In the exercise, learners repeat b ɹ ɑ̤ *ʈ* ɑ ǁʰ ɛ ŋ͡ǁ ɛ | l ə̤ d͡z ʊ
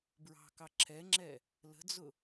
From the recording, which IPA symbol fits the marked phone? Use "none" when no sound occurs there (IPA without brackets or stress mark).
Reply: k